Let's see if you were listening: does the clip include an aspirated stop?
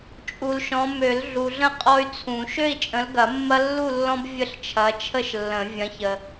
yes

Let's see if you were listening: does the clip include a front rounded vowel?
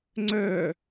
yes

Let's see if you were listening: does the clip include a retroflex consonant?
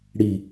yes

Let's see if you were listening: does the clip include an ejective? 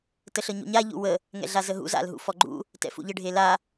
no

